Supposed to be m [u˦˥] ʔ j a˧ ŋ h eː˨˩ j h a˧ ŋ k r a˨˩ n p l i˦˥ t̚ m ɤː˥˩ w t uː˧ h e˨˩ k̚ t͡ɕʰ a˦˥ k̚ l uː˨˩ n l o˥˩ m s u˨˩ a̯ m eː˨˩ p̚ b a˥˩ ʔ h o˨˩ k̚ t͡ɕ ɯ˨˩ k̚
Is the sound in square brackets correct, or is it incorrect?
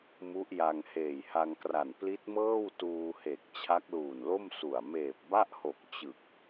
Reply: correct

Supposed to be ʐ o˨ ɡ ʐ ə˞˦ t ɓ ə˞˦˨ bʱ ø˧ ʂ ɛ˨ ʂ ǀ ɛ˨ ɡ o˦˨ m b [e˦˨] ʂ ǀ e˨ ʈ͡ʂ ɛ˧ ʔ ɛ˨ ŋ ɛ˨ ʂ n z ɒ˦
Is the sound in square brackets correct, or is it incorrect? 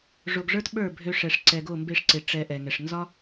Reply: correct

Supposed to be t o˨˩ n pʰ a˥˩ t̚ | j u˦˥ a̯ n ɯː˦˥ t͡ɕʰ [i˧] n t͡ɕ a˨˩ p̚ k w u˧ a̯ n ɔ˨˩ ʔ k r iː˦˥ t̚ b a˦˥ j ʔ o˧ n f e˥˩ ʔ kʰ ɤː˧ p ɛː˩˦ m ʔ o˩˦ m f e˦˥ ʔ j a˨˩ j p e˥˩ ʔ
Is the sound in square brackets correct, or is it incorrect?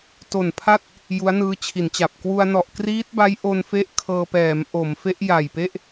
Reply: incorrect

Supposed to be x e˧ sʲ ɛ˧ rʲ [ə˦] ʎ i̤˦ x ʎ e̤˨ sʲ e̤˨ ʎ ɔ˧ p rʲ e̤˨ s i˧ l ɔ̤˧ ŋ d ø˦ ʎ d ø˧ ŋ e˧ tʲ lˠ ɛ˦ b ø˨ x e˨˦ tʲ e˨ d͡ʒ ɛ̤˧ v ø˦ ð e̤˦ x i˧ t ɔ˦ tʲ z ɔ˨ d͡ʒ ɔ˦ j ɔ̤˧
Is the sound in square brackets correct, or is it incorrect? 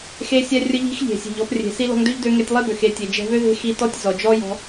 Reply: correct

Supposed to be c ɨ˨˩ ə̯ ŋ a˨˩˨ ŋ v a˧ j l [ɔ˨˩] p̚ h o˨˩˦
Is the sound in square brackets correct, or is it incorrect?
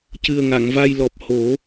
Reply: correct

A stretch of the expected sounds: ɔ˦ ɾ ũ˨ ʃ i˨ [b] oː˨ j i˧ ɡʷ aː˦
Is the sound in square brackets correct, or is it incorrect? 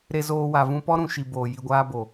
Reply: correct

